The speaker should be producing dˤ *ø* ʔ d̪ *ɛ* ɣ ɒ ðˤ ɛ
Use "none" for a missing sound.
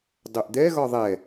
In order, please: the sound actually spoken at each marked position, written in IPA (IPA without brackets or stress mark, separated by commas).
ø, ɛ